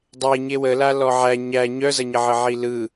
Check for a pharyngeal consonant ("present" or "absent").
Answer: present